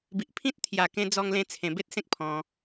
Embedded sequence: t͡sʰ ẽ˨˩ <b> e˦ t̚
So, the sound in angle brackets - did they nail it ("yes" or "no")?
yes